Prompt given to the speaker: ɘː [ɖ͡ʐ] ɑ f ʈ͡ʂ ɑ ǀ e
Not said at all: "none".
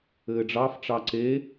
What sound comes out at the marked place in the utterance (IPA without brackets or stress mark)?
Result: ɖ͡ʐ